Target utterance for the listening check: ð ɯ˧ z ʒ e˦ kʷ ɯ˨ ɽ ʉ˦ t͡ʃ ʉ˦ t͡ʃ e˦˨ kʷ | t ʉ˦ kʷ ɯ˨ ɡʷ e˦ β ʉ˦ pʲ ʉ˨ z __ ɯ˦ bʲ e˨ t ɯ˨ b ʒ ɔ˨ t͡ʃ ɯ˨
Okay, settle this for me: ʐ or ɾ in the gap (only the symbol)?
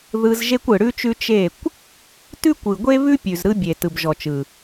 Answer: ɾ